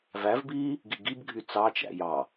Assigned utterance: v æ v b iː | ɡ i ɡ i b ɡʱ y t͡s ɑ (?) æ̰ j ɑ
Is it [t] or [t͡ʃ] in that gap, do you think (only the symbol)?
t͡ʃ